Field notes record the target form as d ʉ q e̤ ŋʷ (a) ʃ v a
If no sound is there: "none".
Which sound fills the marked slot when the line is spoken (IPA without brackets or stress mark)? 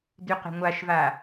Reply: a